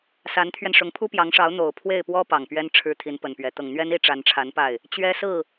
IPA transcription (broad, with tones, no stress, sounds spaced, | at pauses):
s a˧˥ n t̪ʰ ɥ ɛ˧ n ʂ ʊ˧˥ ŋ pʰ u˥ p j ɑ˧˥ ŋ ʂ ɑ˧˥ ʊ̯ n̪ o˨˩ ʊ̯ pʰ w e˥˩ ɪ̯ p w ɔ˥ p ɑ˨˩ ŋ p ɥ ɛ˥ n ʈ͡ʂʰ ɻ̩˥ t̪ʰ i˧˥ n p ə˨˩ n p ɥ ɛ˧˥ t̪ ɤ˨˩ ŋ n̪ ɥ ɛ˥ n i˥ ʈ͡ʂ a˧˥ n ʈ͡ʂʰ a˧˥ n p a˥˩ ɪ̯ | t͡ɕ ɥ ɛ˥ s ɹ̩˥˩